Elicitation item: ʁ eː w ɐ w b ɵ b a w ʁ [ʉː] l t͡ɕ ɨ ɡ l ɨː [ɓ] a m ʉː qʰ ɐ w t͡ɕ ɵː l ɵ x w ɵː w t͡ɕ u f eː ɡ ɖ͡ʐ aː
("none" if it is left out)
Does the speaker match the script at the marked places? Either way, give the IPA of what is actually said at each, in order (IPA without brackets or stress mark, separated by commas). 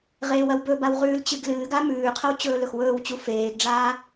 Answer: ʉː, ɡ